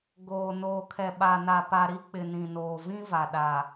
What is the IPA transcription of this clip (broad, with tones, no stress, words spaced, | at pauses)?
ɡoː˨ noː˨kʰɛ˨ ɓa˨na˨ pa˨ɾi˦k͡pɪ˨ nĩ˨noː˨vĩ˦ va˨ɗa˨